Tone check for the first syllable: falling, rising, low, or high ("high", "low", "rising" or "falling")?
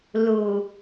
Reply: low